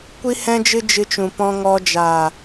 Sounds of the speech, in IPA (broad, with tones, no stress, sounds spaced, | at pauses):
kʷ i˦ h ɛ̃˦ d͡ʒ ɨ˦ d͡ʒ ɨ˧ t͡ʃ ũ˨ p ɔ̃˧ ŋ ɔ˧ d͡ʒ aː˨